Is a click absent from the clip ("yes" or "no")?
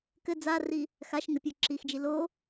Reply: no